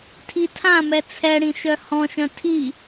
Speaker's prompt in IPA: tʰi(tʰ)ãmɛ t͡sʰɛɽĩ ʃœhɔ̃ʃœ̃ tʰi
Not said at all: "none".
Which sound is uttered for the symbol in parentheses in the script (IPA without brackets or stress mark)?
tʰ